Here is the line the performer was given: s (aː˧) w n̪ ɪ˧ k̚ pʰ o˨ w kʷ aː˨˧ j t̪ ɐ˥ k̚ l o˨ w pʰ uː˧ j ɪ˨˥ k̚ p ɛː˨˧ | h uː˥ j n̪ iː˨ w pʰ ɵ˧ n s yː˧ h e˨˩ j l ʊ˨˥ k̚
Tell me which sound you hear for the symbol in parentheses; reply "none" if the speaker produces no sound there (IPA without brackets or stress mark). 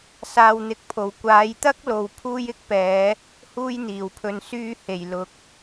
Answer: aː˧